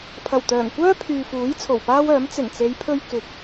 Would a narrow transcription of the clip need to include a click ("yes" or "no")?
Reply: no